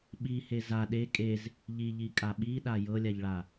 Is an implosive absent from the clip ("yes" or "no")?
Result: no